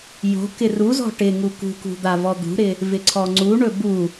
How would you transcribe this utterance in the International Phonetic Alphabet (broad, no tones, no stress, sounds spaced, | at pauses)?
j o̤ k ɪ r u z ɔ̤ ʈ ɪ ŋ u k ṳ k ṳ d̪ a v ɔ d̪ ṳ ɾ ɪ | v ɪ ǀʰ ɔ ŋ͡ǀ u ɳ ɵ b u